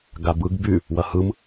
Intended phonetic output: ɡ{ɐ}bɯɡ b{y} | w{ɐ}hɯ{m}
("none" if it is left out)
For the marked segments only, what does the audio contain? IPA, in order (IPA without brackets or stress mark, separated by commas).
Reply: a, y, ɐ, m